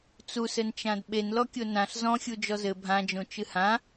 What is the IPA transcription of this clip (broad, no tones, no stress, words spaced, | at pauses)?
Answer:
t͡susɘnt͡ʃãd ɓenlɔkʲo nãɬ zɔ̃xʲu d͡ʒɔzɘ bʱãd͡ʒõ t͡ʃɨhã